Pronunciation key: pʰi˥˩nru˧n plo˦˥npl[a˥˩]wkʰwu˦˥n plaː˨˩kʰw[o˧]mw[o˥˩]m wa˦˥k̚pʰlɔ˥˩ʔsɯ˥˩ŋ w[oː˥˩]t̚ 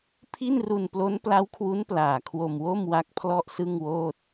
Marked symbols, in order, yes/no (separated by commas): no, yes, yes, yes